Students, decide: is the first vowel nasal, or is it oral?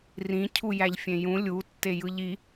nasal